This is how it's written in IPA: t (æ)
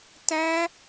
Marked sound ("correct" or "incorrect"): correct